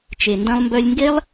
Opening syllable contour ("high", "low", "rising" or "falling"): low